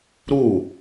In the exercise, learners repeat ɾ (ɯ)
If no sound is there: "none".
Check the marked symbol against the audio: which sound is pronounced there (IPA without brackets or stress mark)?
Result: u